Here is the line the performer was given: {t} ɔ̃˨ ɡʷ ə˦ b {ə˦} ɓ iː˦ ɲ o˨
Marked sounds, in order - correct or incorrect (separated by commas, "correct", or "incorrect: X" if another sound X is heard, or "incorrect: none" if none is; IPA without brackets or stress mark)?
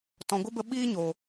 correct, incorrect: ə˧